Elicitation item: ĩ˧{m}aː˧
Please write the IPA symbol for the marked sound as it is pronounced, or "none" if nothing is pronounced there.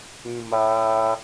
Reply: m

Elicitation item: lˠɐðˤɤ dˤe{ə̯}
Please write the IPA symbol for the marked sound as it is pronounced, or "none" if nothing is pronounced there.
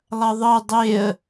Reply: ə̯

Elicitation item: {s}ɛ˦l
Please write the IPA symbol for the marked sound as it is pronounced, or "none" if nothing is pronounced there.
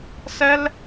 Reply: s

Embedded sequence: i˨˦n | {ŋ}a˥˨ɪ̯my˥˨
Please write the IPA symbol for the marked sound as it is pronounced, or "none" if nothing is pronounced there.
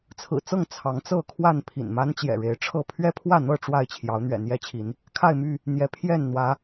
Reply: kʰ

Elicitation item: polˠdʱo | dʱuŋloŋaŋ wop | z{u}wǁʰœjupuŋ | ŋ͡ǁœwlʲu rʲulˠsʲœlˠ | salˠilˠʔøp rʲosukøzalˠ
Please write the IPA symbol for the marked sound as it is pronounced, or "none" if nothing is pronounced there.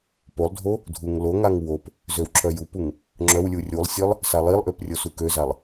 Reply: ø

